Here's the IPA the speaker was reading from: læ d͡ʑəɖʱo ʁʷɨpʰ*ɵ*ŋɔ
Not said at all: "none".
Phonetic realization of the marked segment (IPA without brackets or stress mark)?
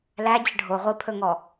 ɵ